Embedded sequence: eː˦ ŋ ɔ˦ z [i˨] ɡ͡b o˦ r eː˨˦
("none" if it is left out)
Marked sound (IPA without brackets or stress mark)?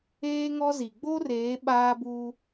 i˨